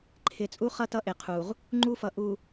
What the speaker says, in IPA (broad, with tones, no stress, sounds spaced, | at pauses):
ǃʰ ɪ˨ t͡sʼ u˦ χ ʌ˦ t ʌ˦ ʔ ɪ˨ qʰ u˨ ʁ | ŋ͡ǃ u˦ f ʌ˨ ʔ u˨